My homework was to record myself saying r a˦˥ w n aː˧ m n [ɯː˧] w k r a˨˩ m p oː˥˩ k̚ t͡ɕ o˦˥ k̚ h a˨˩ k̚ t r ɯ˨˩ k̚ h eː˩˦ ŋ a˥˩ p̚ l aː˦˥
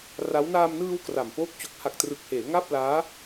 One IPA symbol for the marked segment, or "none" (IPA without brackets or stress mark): ɯː˧